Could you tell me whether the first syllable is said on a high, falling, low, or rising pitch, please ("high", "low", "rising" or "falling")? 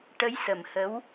rising